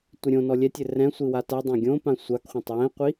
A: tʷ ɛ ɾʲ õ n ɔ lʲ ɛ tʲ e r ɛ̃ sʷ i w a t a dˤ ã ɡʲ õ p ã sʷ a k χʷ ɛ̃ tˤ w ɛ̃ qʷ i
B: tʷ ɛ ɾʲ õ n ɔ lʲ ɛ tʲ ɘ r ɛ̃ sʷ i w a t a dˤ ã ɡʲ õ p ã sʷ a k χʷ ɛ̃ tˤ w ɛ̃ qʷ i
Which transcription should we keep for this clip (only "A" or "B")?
B